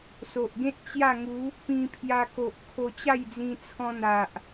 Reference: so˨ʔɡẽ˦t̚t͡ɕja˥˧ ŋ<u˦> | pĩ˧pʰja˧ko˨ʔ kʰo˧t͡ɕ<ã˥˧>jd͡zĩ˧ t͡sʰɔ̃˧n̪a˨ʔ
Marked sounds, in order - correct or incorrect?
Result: incorrect, incorrect

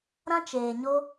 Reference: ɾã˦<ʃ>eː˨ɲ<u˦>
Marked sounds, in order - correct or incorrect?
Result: incorrect, incorrect

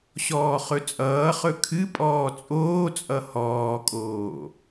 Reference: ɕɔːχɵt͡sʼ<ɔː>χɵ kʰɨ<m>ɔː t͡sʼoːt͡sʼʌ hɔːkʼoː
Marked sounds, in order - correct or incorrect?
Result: incorrect, incorrect

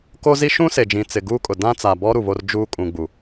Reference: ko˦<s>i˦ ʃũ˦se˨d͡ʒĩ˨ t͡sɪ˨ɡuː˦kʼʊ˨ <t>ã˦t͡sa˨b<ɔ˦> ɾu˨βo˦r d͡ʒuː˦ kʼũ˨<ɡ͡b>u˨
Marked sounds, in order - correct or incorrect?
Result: incorrect, incorrect, correct, correct

